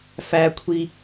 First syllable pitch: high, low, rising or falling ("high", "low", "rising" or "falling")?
high